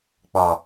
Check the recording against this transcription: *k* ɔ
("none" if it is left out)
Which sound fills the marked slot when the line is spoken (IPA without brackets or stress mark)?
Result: k͡p